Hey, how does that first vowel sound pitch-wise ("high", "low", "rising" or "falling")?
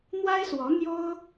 high